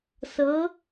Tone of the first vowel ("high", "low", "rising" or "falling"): rising